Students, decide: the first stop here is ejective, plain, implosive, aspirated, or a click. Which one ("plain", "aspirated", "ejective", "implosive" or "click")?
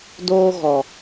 plain